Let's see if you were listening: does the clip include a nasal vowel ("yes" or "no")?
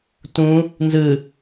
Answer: yes